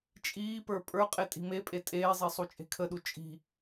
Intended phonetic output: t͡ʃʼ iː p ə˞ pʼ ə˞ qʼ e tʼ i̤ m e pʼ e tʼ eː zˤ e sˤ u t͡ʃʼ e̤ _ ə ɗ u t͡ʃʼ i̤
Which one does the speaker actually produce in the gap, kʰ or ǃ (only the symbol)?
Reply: kʰ